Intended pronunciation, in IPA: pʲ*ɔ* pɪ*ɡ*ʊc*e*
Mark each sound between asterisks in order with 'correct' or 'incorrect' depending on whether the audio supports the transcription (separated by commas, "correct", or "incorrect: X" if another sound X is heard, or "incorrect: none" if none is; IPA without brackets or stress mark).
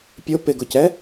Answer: incorrect: ʊ, correct, incorrect: ɛ